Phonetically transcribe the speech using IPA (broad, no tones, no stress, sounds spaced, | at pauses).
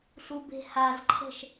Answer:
ɬ u b e̤ h a z ǃʰ ə̤ ʃ